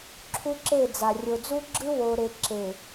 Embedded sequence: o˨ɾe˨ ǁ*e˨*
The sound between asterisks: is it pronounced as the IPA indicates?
yes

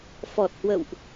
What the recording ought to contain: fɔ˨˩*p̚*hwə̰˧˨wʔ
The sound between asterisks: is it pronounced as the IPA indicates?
no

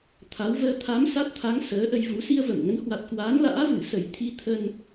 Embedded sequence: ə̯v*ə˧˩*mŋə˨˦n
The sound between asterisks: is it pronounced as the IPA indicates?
yes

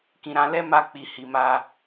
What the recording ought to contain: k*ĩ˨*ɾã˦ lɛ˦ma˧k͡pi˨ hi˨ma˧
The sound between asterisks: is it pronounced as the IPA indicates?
no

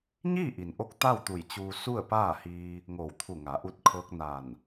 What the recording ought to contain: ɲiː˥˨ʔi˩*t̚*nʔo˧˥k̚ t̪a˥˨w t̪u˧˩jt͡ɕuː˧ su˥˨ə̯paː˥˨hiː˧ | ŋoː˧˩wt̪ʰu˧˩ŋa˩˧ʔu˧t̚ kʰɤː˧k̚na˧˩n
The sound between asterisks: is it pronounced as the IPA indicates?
no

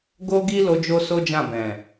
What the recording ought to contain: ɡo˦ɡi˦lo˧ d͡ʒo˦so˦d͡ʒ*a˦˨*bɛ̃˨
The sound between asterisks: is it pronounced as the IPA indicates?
no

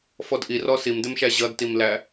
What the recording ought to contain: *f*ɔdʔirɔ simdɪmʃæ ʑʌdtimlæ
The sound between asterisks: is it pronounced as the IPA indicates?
yes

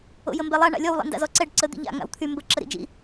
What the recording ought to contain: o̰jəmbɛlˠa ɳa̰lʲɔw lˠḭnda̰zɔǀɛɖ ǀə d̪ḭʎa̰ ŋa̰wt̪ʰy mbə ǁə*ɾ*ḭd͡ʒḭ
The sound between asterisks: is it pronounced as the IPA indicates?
yes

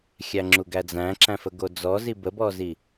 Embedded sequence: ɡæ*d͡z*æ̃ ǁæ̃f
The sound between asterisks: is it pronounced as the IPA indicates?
yes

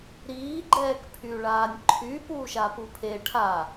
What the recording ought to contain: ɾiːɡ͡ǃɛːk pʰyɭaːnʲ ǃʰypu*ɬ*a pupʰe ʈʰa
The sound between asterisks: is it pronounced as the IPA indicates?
no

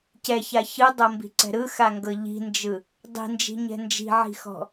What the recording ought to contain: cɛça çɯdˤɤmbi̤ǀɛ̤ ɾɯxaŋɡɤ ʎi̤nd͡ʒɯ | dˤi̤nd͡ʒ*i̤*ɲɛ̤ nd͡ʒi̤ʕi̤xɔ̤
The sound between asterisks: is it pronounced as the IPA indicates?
yes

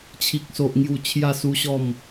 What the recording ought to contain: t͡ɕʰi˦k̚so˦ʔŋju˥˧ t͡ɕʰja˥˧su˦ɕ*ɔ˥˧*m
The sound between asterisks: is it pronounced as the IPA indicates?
yes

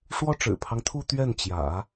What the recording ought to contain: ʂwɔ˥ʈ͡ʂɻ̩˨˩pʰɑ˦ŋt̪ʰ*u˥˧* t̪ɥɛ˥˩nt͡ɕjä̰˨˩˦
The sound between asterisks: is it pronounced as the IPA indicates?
yes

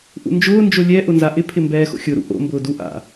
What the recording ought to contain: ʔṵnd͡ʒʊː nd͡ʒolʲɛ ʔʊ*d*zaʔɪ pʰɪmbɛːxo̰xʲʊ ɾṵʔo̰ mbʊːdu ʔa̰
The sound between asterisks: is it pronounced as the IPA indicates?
no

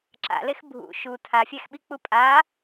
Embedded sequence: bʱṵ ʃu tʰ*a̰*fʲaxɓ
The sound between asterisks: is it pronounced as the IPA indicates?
no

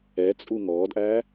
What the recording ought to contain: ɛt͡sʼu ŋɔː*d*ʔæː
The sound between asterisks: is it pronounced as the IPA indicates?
yes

